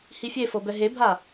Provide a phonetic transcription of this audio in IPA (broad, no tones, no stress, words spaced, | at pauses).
hifʲefɤ bɛɦebʱa